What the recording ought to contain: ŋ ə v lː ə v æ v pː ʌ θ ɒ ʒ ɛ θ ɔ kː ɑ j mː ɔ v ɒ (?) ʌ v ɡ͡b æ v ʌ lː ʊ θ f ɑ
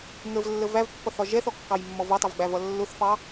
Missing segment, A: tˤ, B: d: A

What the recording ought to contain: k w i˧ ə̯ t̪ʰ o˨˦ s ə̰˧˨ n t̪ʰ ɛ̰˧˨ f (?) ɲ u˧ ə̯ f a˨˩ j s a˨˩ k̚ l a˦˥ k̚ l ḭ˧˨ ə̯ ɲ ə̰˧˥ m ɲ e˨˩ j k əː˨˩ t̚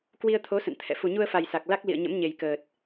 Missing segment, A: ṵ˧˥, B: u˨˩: B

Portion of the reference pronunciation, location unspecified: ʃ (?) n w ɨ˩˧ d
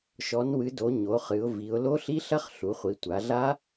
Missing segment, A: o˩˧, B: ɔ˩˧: B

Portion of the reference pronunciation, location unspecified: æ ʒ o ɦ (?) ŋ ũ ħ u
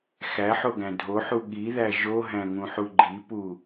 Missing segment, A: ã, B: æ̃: B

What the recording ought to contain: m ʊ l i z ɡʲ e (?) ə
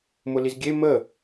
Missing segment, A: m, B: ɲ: A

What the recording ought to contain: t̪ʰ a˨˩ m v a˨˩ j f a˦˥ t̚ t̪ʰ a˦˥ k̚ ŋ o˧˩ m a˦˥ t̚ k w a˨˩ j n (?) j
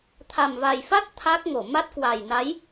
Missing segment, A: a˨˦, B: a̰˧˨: A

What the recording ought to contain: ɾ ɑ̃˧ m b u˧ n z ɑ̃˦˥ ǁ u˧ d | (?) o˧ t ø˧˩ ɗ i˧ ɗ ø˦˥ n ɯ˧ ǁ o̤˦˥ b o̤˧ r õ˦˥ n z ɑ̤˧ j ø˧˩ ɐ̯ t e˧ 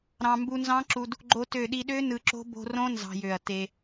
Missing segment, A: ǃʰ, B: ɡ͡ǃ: B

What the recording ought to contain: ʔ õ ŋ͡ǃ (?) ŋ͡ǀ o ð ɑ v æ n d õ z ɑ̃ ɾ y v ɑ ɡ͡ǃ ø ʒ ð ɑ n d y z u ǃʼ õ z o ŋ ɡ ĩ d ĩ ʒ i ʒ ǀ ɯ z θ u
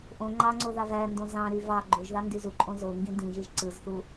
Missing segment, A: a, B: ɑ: B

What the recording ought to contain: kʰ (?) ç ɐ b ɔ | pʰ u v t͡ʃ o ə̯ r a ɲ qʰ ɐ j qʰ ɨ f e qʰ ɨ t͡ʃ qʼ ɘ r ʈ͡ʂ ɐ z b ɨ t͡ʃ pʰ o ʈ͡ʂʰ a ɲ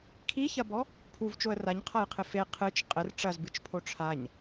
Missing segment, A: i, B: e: A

